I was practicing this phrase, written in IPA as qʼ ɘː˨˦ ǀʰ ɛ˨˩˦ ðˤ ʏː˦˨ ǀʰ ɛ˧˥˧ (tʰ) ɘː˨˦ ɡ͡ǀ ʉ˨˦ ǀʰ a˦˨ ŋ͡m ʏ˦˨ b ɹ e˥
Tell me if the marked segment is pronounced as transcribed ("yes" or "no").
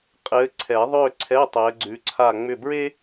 no